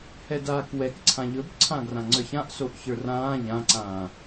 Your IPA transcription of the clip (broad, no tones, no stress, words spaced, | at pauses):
hɛdaːkwɛk ǀʰãʎɵbǀʰã ɡrãŋ͡ǀə˞çãʔ soʔçə˞rãː ʎãǀãː